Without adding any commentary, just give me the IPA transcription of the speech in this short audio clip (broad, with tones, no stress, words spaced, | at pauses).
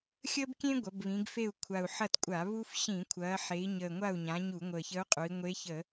xʲəː˥bkʲẽ˥ ɡʷɐ˩˧bβĩ˩˧ɡfe˦˨u̯kʷʰa˨˩u̯ ħɐ˦˨tkʷʼa˧˩˧ βu˥f ɕĩ˧˩˧kʷʰɐː˩˧ħe˩˧i̯ ɲəː˨˩ŋʷa˦˨u̯ɲã˩˧ ɲu˧˩˧ŋʷəː˨˩çə˧˥u̯qʼu˩˧i̯ ŋʷe˧˥çə˧˩˧